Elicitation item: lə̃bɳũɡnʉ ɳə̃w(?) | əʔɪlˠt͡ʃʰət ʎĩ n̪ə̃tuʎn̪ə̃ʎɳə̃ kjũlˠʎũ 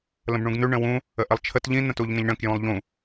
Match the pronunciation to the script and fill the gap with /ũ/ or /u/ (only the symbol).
ũ